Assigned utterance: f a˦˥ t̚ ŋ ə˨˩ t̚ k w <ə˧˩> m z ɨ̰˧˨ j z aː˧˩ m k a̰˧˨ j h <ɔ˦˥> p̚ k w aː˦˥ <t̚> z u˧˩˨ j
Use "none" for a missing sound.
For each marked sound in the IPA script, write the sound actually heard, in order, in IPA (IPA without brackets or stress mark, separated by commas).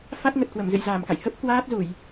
ə˧˩, ə˦˥, t̚